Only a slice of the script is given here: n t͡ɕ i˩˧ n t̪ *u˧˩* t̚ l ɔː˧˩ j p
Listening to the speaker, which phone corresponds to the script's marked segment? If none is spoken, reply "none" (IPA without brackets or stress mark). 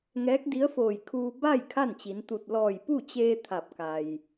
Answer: u˧˩